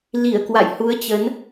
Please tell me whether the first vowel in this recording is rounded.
no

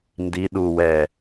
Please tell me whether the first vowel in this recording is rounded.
no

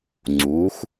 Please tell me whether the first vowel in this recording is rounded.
yes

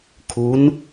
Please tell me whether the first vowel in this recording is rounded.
yes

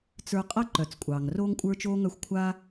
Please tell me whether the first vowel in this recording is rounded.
no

